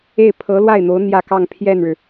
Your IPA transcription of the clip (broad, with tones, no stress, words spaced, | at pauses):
e˥˩ɪ̯ pʰɤ˧˥lwa˥˩ɪ̯n̪o˧˥ʊ̯ n̪jä˥˧kɑ˥˧ŋ pʰjɛ˥˩nɻɻ̩˩